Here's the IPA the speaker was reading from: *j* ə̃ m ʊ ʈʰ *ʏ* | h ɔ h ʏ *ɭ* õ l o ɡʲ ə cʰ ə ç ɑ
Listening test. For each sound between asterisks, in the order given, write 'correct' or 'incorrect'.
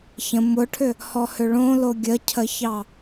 incorrect, correct, correct

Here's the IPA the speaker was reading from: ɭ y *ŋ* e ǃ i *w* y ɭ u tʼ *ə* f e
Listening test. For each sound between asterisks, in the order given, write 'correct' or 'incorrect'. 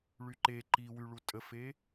incorrect, correct, correct

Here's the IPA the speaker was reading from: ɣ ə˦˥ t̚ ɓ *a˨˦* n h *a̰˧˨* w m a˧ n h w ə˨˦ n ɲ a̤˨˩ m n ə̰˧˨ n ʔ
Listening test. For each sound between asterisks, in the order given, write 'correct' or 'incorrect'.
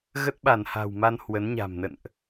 incorrect, incorrect

